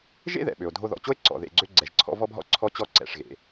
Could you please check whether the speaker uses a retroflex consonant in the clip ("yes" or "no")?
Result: yes